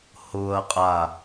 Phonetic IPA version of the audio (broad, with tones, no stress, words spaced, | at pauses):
hʊː˨ɐ̯qʼa˨